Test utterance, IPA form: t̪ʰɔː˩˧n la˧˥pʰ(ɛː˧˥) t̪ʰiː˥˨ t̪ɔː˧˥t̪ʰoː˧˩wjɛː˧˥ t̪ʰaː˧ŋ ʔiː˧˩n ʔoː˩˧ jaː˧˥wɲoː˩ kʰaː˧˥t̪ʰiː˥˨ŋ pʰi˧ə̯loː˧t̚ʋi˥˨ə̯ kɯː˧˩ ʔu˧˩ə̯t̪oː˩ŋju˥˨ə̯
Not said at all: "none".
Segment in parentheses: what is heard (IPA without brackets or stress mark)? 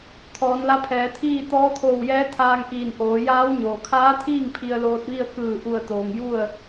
ɛː˩˧